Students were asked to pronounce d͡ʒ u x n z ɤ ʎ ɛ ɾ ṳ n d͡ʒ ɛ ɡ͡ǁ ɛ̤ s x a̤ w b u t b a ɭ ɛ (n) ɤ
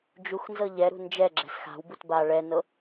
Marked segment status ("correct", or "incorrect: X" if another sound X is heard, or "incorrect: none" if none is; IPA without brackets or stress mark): correct